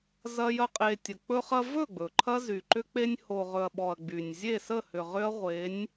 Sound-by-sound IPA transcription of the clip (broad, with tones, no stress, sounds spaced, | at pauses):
z ɐ˦ j ɐ˦ qʼ e˧ tʲ ə˨ k͡p ɵ˧ χ ɐ˧ v ɵ˦˨ ɡ͡b ɵ˨ ǃʰ ɐ˦ z y˨ ǃ ʏ˦ k͡p e˧ nʲ h o˨ ʁ ɵ˨ ɐ̯ ɓ ɔ˨ ɐ̯ ɡ͡b y˨ nʲ zʲ e˦˨ s ə˦˨ h ʏ˨ ʁ ʏ˦ ɐ̯ ʁʷ e˨˦ nʲ